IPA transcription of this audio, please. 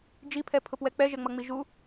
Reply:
d͡ʒ i pʰ ɛ pʰ ʊ p w ɛ k͡p ɛ ʒ ɛ ŋ͡m ʌ ŋ͡m i ʒ u

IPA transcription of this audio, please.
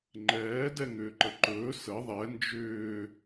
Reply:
ŋ͡ǃ ɛː d ɛ ŋ ʏː ǃ ə ǃ ɵː s ə ðˤ ɛ n d͡ʒ ʏː

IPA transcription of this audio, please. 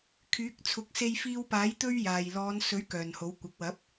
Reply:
kʰ yː˨˥ k̚ t͡sʰ ʊ˨˥ k̚ s e˧ j f iː˧ w p aː˨˥ j t̪ ɵ˥ ɥ j aː˨ j l ɔː˨˧ n s ɵ˨˥ ɥ k œː˨ n h o˨˥ w kʷ ɐ˨˥ k̚ w ɐ˨˥ p̚

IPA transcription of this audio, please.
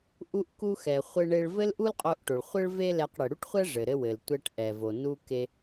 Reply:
ʔ u˧ ʔ k u˧ x ɛ˩ χʷ ɘ˧ ɳ e˧ ɭ v ɘ˥ l ʔ u˥ l qʼ o˧ ʔ ʈ o˩ ɭ χʷ ɘ˥ ɭ v e˥ l ɛ˧ q ɽ ɘ˩ ɽ u˥ ʈ χʷ ɛ˥ ʐ ɘ˩ ɾ ɘ˧ w ɘ˩ l tʷ ɛ˧ ʈ ʔ ɛ˩ v o˩ n u˧ k e˧

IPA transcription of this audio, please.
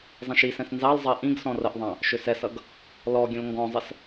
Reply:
zˤ ɛ̃ ʃ i s ɛ̃ s n z ɑ l zˤ ʌ e̯ ʔ ĩ ɡ s ɔ̃ r ə ʔ ðˤ ɑ̃ | ʃ ʏ s ɛ s ʌ ɡ | l ɔ ɡʲ ə̃ l ŋ ɡ ɔ̃ zˤ ə s

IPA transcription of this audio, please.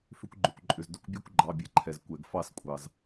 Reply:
f ʏ˧ kʷ ɡ͡ǃ ʏ˩ kʷ ǃʼ ʏ˩ z d ʏ˥˧ kʷ bʲ ɛ˥˧ kʷ ɡ͡ǃ ɑ˩˧˩ bʲ ɛ˧ ǃʰ ɛ˩ z kʷ ɛ˩ ɡ f ɑ˥˧ s kʷʼ ɑ˩ z

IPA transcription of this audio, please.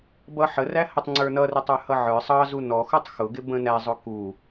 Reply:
b ʌ ħ ə r æ h ə tˤ ŋ͡ǀ ə˞ n ʌ r ɪ tˤ ə˞ h ʌ ʕ ə˞ sˤ ɑ z u n ɔ x ʊ tˤ x ʊ ɡ ɪ b ə̃ n æ zˤ ʊ k u

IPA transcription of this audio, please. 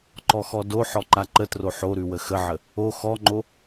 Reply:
ǃ ɔ x ɔ d o ħ ɔ ǃ a ǃ ə t r o ħ o ɾ ʉ w ə x ə ʕ ə | o x ɔ ŋ͡ǃ o

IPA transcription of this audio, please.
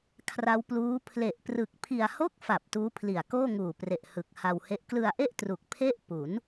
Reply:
kʰ r a˦˥ w p l uː˦˥ pʰ l e˨˩ ʔ p r ɯ˨˩ k̚ pʰ i˧ a̯ h o˥˩ k̚ f a˨˩ p̚ t uː˦˥ pʰ l i˨˩ a̯ k oː˥˩ ŋ uː˨˩ p r e˨˩ ʔ h ɯ˨˩ k̚ h a˧ w h e˦˥ ʔ k l ɯ˧ a̯ ʔ e˥˩ ʔ t r u˨˩ k̚ pʰ e˥˩ ʔ p u˩˦ n

